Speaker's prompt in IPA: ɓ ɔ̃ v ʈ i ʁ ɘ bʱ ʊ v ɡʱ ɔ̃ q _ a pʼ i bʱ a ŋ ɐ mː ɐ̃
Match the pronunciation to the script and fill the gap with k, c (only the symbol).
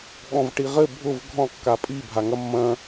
k